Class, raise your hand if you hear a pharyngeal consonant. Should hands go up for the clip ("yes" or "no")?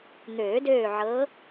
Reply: yes